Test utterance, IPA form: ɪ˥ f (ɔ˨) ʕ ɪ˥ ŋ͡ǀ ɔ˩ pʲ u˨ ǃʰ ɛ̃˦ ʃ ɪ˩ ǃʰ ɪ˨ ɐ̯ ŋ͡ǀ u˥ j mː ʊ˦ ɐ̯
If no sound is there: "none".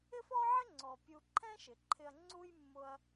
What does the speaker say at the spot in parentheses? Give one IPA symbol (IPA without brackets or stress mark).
ɔ˥